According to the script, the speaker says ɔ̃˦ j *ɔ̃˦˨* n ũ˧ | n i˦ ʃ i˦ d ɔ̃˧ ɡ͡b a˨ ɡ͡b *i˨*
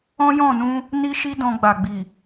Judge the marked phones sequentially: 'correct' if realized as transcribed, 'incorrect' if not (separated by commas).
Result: correct, correct